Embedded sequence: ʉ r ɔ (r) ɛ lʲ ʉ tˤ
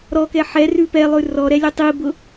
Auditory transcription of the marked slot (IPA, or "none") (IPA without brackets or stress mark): ɾ